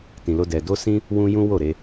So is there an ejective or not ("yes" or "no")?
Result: no